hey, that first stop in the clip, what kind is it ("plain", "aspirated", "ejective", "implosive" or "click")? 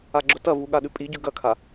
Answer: click